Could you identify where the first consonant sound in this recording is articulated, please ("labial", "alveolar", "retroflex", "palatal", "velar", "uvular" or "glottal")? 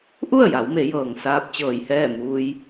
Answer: glottal